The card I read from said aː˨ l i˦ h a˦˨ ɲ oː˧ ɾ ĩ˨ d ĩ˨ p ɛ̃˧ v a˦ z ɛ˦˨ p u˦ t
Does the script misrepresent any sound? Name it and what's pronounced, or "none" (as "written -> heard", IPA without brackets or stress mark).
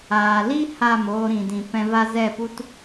ɲ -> m